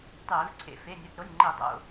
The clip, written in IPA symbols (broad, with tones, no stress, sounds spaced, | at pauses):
tˤ eː˧˩˧ v ǀʰ ḛ˧˩ f e˩˧˩ nʲ ʌ˩˧˩ t ɾ o˩˧˩ nʲ ŋ͡ǃ e˧˩˧ dˤ o̰˩˧˩